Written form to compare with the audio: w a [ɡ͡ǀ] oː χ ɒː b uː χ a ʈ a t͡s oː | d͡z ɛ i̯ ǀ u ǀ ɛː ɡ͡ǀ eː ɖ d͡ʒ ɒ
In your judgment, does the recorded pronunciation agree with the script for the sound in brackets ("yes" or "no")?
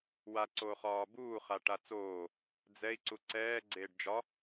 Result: no